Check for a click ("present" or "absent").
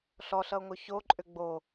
present